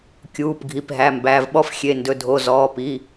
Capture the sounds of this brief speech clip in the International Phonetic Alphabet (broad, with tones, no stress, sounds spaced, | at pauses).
kʲ uː˩˧˩ p ɡʱ i˩˧˩ p ɦ æ˩˧˩ m b æ˩˧˩ v ɓ ɔ˦ f xʲ e˩˧˩ n d ɵ˩˧˩ dʱ o˩˧˩ z ɔː˩˧˩ p i˩˧˩